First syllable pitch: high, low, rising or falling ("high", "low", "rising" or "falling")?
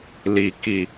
low